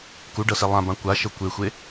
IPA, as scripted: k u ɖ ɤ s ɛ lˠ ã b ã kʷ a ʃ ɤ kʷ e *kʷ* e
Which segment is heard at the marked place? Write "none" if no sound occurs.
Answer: xʷ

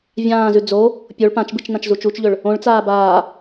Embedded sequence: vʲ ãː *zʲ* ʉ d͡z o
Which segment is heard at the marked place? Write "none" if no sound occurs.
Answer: z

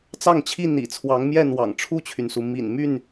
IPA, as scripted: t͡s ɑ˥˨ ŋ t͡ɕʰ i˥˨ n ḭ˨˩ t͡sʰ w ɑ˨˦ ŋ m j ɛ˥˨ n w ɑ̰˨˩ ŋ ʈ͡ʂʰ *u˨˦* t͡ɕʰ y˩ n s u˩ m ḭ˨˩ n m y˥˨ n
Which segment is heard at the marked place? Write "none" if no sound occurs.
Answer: u˥˨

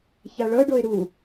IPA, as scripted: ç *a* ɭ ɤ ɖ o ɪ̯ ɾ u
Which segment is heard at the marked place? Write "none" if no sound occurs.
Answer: a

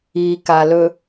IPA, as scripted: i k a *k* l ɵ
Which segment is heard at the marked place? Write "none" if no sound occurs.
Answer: none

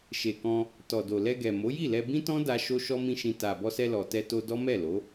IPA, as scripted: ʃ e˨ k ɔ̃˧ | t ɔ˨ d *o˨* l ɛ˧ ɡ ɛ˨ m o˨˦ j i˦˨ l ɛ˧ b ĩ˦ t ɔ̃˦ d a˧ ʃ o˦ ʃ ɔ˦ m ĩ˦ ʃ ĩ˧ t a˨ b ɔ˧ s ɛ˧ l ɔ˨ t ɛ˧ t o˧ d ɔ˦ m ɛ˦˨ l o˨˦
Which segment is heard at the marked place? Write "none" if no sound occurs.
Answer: o˨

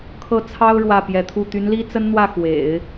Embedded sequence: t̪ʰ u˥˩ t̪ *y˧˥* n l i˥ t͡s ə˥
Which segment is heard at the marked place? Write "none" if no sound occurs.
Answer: y˧˥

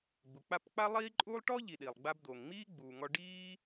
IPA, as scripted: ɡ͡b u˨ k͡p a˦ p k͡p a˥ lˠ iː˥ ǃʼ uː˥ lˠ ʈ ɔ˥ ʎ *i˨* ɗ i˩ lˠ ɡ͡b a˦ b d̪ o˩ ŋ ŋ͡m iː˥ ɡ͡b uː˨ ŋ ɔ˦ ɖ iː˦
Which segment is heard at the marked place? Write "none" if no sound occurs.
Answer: i˨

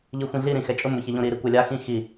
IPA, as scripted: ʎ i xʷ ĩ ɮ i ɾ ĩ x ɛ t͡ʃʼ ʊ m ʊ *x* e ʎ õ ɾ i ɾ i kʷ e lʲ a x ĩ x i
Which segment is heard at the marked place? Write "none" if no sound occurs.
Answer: ç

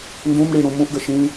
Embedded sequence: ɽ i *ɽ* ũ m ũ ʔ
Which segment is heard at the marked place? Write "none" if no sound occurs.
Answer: ɽ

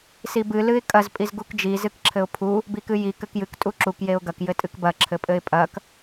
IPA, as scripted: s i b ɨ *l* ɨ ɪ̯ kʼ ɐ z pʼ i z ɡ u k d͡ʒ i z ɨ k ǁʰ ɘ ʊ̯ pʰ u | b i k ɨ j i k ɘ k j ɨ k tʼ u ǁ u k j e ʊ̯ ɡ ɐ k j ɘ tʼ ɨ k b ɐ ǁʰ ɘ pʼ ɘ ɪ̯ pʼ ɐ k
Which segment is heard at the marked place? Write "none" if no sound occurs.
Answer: l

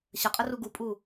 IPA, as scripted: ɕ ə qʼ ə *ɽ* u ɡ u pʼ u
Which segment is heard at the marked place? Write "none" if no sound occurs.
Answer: r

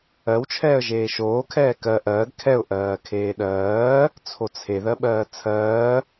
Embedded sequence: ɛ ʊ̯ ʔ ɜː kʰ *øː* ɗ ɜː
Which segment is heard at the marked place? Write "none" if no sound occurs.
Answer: eː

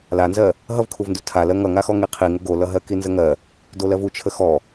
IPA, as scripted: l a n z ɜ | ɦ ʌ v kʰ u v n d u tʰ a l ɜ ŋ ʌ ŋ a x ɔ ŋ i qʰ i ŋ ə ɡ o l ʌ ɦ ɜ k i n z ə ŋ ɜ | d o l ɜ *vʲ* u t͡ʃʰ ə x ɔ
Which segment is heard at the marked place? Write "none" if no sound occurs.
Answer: v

